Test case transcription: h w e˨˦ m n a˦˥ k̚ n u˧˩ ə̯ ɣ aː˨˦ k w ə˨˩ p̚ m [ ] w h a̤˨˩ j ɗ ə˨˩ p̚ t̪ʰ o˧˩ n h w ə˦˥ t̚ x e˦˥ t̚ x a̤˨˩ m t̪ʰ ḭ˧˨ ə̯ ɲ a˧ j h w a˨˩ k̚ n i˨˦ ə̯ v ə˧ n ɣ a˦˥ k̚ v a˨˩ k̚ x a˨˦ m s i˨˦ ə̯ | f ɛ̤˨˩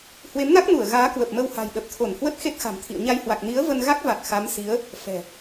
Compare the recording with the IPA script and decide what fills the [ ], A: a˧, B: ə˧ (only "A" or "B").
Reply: B